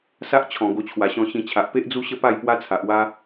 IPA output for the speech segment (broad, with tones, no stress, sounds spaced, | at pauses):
s a˦ ʔ t͡ɕʰ ɔ̃˨˩ ɡ o˧ t͡ɕʰ w a˨˩ ɕ ɔ̃˧ ɕ ĩ˧ t͡ɕʰ a˨ ʔ p e˦ ʔ d͡z u˦ ɕ ə˥˧ p a˥˧ j p w a˦ t͡sʰ a˨ ʔ w a˦